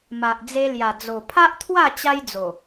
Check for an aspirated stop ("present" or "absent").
present